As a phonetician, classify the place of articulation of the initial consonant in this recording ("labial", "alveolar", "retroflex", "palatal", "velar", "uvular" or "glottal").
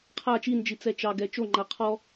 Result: uvular